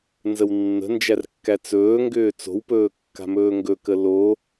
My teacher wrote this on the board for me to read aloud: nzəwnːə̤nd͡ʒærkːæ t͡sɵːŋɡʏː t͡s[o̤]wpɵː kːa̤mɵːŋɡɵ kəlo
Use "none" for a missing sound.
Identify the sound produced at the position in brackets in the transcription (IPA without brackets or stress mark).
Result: o̤